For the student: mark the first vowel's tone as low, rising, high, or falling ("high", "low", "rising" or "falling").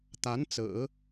rising